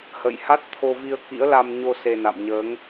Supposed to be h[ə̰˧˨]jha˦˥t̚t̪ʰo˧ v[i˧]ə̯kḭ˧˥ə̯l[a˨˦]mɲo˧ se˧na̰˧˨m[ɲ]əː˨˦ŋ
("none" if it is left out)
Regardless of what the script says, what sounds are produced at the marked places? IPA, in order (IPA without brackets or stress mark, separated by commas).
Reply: ə̰˧˨, i˧, a˧, ɲ